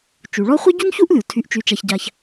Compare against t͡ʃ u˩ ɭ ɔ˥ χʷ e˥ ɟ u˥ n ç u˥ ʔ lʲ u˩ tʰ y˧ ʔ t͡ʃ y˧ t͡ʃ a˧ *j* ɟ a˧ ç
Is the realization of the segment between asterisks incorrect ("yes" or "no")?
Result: yes